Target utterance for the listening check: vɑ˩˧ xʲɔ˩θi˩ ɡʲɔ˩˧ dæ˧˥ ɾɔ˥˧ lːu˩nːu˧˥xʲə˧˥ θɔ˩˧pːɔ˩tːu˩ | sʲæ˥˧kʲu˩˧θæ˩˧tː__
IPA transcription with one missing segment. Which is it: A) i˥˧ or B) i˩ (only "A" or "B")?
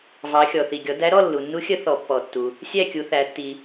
B